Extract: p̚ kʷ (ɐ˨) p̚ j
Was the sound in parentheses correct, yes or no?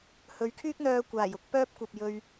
yes